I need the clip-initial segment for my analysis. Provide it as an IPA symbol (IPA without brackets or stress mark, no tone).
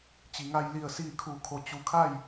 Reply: t͡ɕ